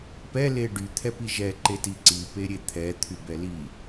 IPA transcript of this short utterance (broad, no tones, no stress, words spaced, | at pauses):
pɛle ɖyt̪ʰɛpi ʒɛǃeti ǀipeɾʲe t̪ʰɛt̪ʰybɛ li